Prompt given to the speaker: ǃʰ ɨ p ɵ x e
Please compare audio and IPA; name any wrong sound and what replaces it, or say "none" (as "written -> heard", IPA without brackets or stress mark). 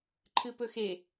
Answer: none